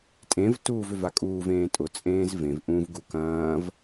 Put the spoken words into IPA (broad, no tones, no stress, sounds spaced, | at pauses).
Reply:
tʼ ẽ v t uː v ʏ v a kʼ uː v ẽː tʼ ʊ t͡sʼ ẽː z v ẽ v ʔ ũ v ɡ u k ɐ̃ː v